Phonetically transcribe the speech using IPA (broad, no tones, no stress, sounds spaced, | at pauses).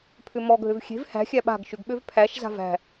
pʰ ʏ m ɔ ɡʱ ø v xʲ e̤ v h æ̤ xʲ æ ɓ a̤ ɡ ʃ ʏ ɡ ɓ ø v pʰ æ ʃ z a̤ v æ̤